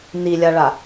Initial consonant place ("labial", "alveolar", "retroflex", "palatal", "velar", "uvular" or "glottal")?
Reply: alveolar